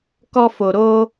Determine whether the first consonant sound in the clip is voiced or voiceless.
voiceless